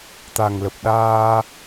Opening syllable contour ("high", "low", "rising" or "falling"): low